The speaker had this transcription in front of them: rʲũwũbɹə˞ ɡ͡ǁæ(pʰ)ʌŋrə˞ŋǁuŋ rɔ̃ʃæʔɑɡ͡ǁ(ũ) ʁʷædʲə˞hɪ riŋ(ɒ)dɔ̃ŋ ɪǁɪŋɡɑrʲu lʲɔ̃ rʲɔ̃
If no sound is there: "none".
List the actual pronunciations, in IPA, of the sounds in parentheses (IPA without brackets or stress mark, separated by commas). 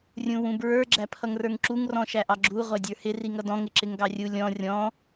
pʰ, u, ʌ